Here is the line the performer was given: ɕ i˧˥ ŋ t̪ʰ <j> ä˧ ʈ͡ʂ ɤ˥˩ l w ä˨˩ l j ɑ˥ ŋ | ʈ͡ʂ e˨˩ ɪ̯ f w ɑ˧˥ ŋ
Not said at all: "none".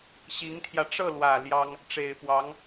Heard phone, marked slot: j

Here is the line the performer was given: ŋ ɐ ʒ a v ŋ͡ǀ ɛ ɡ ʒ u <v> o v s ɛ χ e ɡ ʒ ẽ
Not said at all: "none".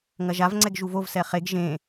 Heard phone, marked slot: v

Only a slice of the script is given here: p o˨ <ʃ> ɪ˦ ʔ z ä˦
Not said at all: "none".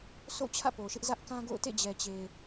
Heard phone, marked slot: ʃ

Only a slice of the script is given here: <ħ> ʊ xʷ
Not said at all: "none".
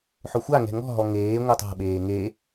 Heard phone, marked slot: ħ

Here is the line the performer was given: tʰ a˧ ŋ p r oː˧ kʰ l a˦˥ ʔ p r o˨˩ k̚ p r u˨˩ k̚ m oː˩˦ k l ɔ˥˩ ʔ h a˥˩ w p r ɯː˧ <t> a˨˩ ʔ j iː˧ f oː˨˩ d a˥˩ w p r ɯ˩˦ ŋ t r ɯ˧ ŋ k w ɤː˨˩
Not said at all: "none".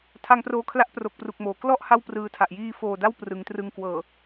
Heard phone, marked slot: tʰ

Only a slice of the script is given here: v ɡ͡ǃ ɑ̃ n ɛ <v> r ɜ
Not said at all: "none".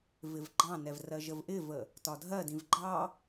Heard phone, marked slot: v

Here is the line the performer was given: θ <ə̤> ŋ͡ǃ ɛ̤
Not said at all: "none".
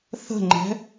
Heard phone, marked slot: ə̤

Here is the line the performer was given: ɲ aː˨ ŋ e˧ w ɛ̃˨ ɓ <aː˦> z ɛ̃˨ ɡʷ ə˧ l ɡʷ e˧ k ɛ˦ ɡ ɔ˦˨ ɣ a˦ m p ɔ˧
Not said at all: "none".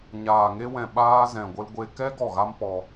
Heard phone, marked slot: aː˦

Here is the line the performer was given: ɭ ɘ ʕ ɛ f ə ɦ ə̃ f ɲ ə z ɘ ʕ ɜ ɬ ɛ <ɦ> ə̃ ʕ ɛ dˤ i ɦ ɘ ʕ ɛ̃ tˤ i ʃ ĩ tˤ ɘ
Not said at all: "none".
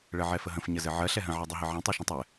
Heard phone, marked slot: ɦ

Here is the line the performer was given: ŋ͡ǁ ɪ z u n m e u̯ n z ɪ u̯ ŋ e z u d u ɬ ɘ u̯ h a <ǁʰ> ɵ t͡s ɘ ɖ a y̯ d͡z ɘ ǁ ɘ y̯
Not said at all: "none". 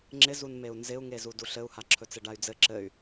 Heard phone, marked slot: ǁʰ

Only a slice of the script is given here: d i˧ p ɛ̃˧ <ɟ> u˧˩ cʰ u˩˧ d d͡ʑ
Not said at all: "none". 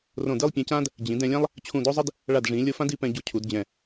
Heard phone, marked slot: ɟ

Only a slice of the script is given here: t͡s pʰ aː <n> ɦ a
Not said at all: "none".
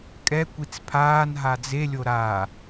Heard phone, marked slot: n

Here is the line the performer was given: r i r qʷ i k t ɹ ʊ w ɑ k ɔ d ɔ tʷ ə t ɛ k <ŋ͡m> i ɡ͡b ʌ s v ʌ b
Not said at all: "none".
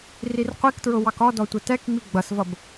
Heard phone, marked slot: ŋ͡m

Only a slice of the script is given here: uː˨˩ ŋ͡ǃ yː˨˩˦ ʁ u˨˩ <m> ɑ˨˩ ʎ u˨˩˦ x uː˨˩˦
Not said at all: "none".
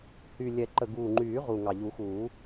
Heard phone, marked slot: ŋ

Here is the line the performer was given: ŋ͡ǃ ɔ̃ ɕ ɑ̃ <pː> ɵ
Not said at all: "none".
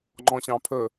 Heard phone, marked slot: pʰ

